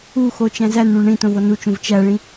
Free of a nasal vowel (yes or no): no